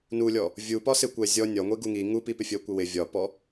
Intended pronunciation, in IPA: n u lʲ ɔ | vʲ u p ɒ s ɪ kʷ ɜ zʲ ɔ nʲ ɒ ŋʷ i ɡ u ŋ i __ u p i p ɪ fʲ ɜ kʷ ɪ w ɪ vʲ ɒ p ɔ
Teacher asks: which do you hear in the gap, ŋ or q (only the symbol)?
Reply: ŋ